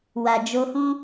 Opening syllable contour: low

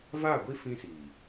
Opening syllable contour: falling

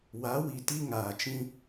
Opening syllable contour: rising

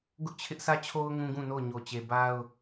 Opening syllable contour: high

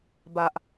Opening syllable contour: low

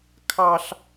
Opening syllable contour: high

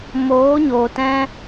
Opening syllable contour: rising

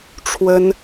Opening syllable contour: high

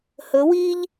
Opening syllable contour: rising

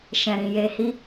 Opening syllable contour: low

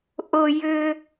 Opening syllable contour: high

